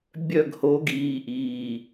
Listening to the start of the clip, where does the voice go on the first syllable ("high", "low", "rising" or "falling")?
falling